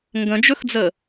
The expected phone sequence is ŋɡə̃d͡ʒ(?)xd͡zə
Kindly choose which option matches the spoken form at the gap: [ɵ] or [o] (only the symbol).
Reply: ɵ